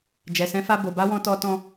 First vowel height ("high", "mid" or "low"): mid